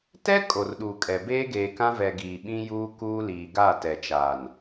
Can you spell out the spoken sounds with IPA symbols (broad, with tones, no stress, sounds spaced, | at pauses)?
t ɛ˦ kʼ o˨ r ɗ u˨ kʼ ɛ˨ b eː˦ ɡ eː˨ k ã˦ v ɛ˨ ɡ iː˨ ɓ ĩ˦ j uː˦ k uː˦ l iː˨ ɡ a˦˨ t ɛ˨ t͡ʃ aː˨ n